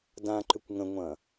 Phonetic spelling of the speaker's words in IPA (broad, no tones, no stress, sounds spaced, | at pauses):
d ã ǃ ʏ kʷ ŋ ə̃ ŋʷ ɐ̃